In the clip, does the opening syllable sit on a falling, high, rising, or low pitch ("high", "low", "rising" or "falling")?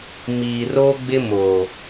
low